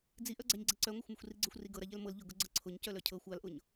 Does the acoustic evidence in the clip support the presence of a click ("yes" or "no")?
yes